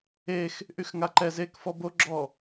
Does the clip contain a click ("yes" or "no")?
yes